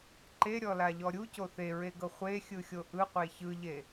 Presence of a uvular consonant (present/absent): present